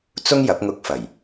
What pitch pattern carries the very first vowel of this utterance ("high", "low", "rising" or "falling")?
high